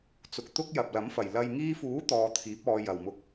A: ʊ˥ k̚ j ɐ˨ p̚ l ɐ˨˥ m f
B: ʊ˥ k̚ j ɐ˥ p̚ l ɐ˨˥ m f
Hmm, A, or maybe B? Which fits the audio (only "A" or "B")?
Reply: A